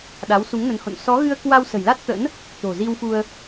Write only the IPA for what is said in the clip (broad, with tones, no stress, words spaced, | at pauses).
ɗa˨˦wsu˨˦ŋnə˨˦nho̰˧˨n sɔ˨˦ɣɨ˧ə̯kwa˧w sə̤˨˩jla˦˥t̚t̪ə̰˧˥n | t̪o̤˨˩zi˧wfu˧ə̯